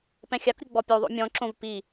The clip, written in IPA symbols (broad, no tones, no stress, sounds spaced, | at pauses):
p ɛ̃ xʲ a k ɾʲ u ɡ͡b ɔ pʲ u ðˤ o̰ mʲ ɔ̃ ǁ õ v p i